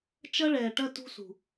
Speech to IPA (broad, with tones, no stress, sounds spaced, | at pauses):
t͡ʃ ɐ˦ ɭ ɛː˨ ʈ ɐ˦ t ṳ˦ s ṳ˨